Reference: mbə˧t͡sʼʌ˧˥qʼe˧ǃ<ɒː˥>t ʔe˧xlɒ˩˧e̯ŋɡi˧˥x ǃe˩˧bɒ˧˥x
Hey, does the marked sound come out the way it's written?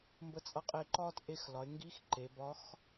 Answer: yes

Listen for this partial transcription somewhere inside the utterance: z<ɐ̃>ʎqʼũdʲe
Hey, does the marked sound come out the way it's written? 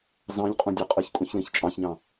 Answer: no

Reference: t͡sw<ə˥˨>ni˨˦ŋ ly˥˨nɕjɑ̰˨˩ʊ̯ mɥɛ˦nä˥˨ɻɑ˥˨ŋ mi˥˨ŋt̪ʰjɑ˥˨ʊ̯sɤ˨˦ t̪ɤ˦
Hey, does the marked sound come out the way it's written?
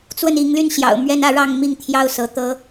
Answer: yes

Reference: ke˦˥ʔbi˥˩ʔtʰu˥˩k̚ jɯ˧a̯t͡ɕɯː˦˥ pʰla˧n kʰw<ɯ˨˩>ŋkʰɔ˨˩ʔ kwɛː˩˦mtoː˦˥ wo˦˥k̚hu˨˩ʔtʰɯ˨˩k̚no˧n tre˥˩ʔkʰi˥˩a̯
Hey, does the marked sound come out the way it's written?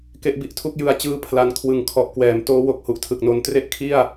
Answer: yes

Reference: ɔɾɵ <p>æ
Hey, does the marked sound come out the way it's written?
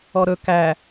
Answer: no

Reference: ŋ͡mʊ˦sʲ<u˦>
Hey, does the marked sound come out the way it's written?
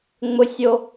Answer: no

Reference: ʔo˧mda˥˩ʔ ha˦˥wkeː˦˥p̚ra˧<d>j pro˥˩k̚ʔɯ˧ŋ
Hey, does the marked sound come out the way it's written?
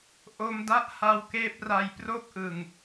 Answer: no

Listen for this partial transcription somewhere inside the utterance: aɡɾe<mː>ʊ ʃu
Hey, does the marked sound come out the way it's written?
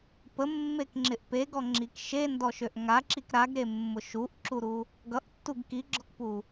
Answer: yes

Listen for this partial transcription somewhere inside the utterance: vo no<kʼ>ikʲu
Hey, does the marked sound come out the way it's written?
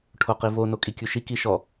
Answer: yes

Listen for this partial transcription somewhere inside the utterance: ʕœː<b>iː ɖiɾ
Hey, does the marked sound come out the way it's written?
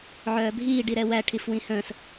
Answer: no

